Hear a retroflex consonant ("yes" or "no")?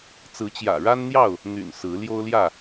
yes